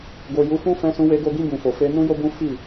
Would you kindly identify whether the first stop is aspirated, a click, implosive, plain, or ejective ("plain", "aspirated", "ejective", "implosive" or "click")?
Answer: plain